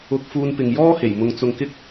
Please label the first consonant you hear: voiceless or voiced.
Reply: voiceless